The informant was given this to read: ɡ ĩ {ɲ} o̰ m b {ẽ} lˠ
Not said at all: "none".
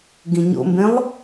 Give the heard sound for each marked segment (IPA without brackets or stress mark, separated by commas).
ɲ, ẽ